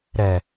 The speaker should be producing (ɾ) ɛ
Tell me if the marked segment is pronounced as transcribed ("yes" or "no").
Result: yes